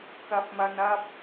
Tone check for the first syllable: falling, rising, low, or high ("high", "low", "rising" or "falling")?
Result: rising